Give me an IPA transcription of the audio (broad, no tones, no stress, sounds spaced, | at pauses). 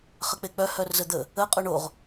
χ ə k͡p e k͡p œ h œ r z ə d̪ ə | ə qʼ o ɳ o ʁ